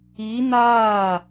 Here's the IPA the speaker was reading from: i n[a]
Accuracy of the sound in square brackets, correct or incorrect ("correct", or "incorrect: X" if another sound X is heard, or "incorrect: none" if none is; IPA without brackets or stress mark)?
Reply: incorrect: aː